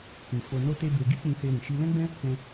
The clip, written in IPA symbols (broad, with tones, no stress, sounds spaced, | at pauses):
k ĩ˧ f o˧ n o˦ t e˦ b e˧ ɡ i˦ k͡p ĩ˧ s e˧ ɾ ĩ˨ ʃ i˧ l ɛ̃˦ ɡ͡b ɛ̃˦ | k ɛ̃˧